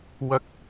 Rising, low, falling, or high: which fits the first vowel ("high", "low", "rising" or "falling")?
rising